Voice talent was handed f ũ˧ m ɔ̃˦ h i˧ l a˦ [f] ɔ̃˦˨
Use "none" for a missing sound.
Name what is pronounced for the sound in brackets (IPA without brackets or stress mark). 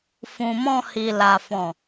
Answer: f